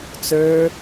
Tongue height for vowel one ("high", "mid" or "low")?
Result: mid